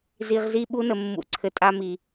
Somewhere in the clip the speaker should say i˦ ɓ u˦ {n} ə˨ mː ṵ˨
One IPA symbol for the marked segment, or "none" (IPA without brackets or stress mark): n